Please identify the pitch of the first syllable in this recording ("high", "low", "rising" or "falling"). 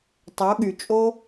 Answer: rising